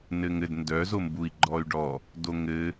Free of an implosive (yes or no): yes